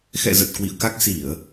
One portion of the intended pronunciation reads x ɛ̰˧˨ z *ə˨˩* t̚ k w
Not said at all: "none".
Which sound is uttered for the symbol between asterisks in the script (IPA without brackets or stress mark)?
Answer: ə˨˩